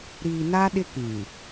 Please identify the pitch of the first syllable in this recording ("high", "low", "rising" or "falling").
low